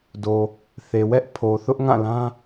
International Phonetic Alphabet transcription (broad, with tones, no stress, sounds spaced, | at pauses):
d o˨ | θ e˨ w ɛ˦ ʔ pʰ o˨ θ ʊ˦ ʔ ŋ ã˦˨ l ã˦